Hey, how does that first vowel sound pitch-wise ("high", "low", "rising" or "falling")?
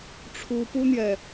high